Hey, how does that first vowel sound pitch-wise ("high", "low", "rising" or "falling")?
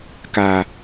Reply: low